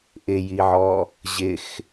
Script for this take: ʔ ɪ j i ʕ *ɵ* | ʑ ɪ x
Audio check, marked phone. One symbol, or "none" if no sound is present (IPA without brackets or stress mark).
ɔ